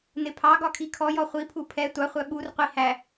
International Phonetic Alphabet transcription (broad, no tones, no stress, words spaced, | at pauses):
nɪpʰɑɡɒ kʰikʰɔjɔ χʷipʰu pʰɛ tʷɑχʷæ ɓur qʷi hæ